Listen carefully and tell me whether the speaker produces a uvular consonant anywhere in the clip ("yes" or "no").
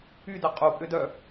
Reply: yes